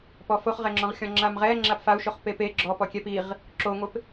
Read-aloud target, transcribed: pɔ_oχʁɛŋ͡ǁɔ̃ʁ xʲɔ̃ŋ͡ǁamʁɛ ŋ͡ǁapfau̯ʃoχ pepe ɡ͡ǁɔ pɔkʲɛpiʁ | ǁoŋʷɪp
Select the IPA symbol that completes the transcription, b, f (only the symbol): f